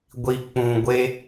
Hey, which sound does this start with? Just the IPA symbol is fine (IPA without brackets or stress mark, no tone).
ɡʷ